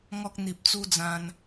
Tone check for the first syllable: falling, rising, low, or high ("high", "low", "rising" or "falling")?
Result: high